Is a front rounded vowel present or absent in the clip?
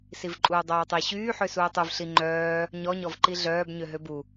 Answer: present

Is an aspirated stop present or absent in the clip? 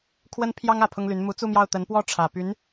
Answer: present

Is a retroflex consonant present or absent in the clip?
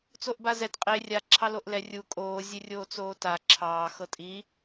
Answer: absent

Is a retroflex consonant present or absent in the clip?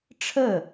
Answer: present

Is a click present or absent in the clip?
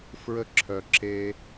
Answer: present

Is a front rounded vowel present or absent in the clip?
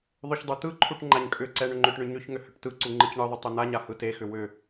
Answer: present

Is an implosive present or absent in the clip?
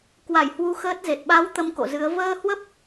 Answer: present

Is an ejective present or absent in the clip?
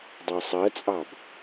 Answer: present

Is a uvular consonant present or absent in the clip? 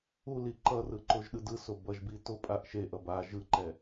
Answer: absent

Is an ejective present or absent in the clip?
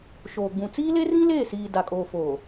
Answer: present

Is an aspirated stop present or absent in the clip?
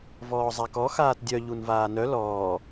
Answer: absent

